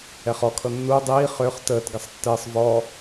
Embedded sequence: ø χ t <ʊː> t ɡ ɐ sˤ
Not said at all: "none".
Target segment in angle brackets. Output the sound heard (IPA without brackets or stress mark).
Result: əː